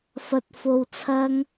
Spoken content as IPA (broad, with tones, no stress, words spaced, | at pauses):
fɐ˧t̚ fo˧wt͡sʰɐ˥ŋ